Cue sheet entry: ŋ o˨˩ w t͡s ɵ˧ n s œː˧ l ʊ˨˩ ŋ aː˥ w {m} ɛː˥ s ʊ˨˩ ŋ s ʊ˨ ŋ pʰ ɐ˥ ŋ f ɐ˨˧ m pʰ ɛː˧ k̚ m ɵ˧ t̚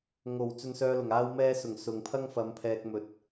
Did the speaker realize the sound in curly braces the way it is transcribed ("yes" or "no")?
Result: yes